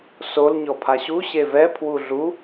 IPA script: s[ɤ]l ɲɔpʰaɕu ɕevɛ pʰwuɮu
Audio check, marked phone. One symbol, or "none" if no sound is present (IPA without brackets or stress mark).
o